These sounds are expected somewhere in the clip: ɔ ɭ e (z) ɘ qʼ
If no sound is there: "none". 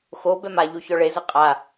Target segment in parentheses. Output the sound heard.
z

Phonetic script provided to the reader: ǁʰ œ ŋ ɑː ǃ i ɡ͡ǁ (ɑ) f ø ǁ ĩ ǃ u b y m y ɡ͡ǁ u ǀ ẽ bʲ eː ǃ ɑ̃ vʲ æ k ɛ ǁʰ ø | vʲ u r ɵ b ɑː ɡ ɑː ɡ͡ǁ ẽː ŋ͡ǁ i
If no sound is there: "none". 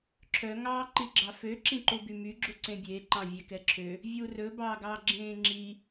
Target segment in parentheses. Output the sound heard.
ɑ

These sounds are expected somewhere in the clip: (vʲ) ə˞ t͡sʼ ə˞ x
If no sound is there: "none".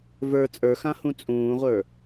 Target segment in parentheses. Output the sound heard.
v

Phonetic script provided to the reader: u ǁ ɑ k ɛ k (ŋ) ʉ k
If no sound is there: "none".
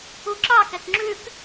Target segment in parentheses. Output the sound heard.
ŋ͡ǁ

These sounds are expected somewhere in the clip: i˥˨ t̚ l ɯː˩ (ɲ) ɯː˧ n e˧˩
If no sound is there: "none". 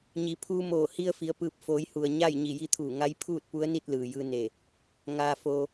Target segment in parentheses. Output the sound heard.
j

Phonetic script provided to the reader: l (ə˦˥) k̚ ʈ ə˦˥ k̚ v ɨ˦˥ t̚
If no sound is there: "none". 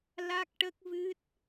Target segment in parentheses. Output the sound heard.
a˦˥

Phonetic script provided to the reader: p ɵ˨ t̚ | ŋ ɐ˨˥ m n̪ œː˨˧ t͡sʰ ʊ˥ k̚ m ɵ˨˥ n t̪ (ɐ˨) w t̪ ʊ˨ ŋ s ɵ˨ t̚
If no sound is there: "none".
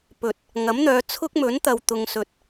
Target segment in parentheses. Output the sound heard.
ɐ˨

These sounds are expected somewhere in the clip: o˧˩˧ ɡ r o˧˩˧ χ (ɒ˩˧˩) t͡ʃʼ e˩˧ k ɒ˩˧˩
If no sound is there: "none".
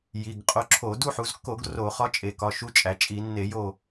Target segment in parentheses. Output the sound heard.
ɒ˧˥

